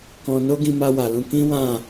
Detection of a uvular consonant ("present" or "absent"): absent